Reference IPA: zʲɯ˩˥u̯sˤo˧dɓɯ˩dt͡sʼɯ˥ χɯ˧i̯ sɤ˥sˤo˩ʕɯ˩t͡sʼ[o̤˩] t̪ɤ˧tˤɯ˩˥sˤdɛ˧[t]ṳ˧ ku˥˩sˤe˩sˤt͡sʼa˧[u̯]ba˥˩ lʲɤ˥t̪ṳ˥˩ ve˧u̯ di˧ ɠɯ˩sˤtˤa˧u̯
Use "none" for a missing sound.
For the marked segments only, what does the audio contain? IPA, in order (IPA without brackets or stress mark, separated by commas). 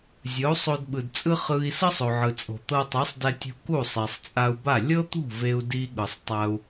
o̤˩, tʲ, u̯